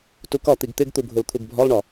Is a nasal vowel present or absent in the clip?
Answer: absent